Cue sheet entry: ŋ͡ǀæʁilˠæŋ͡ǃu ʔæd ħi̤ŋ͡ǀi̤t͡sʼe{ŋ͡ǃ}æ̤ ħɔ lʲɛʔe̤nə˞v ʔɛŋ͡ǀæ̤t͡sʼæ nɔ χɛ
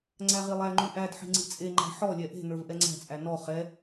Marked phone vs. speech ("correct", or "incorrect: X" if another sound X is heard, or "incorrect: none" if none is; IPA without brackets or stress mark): correct